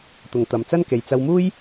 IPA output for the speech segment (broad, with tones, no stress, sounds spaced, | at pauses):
t̪ ʊ˨ ŋ t̪ ɐ˨ m t͡s ɐ˥ n k e˨ j t͡s ɐ˧ w m uː˥ j